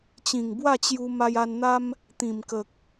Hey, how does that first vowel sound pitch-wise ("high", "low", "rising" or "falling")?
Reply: low